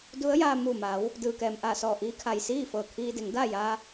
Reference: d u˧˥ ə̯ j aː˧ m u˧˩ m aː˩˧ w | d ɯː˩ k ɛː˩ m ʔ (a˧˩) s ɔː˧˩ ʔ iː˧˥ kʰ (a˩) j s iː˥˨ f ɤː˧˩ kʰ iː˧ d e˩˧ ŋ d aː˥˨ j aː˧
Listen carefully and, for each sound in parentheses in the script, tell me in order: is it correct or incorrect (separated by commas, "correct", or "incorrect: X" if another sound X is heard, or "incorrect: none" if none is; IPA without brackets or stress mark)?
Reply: correct, correct